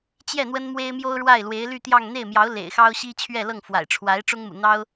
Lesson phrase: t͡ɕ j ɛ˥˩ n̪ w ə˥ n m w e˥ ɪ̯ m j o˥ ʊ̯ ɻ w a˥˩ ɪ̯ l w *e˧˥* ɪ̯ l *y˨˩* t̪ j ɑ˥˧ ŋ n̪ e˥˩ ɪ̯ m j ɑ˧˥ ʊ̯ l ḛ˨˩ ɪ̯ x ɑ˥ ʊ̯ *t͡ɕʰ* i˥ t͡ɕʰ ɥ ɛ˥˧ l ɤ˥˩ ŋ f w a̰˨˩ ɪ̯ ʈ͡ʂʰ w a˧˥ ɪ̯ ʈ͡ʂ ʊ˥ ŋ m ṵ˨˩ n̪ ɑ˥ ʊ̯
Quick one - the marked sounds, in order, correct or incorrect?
correct, incorrect, incorrect

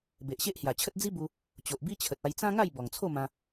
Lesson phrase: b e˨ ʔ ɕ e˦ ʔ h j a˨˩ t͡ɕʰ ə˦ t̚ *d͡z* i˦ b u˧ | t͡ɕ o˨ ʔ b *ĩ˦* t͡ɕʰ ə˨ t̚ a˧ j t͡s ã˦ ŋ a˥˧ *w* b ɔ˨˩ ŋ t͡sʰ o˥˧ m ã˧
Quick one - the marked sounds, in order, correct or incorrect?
correct, incorrect, incorrect

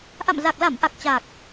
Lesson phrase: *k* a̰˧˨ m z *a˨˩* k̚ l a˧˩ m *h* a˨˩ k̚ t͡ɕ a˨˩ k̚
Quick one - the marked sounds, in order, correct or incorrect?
incorrect, correct, incorrect

